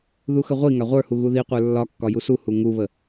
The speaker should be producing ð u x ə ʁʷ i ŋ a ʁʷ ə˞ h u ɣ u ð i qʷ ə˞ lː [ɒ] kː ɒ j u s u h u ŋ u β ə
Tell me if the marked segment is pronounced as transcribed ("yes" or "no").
yes